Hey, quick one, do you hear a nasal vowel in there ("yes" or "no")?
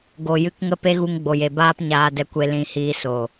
yes